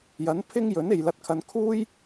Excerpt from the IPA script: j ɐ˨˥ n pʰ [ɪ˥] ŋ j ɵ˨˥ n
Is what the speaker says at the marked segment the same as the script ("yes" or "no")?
yes